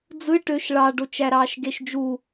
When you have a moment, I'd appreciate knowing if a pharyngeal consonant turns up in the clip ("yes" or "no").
no